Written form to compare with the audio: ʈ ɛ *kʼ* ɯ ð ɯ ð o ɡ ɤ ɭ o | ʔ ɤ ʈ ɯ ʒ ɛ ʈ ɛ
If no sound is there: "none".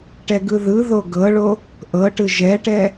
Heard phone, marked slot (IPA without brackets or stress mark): ɡ